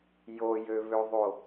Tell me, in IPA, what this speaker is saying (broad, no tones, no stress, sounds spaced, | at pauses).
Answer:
j o j ø β ø ðˤ o